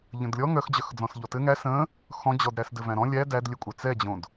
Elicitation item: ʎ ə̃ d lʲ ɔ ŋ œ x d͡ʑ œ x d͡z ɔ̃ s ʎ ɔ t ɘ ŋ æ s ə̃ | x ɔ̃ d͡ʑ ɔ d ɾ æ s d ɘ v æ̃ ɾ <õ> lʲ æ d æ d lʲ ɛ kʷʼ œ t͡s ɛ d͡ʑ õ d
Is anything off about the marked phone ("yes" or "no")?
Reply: yes